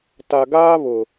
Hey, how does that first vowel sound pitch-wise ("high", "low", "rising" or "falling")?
low